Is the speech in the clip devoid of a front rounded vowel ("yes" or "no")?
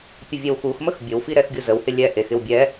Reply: yes